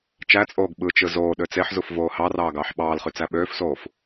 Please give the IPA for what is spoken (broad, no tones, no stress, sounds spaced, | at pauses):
t͡ʃ æ t͡sʼ oː ɡ ɓ ɯ t͡ʃ ɯ z oː ɗ ø t͡s e ħ z u f v oː h ɑ r ɑː ɡ ɑː ħ ɓ ɑː l χ y t͡s æ ɓ øː f s oː f